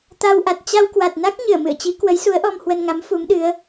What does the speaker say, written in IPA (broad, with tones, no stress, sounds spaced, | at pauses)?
t̪ a˧ w ʔ a˨˩ t̚ t͡ɕ a˧ w k w a˨˩ t̚ n a˦˥ k̚ ɲ ɨ˧˩ ə̯ m ɨ̰˧˨ ə̯ t͡ɕ i˨˦ k w ə˨˦ j s u˨˦ ə̯ ʔ ɔ˧ m h w ə˧ n ŋ a˨˦ m f u˨˦ m ɗ ɨ˨˦ ə̯